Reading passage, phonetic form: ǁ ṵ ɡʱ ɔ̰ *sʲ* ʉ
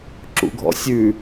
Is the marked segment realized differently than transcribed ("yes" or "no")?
no